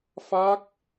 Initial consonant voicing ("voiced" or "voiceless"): voiceless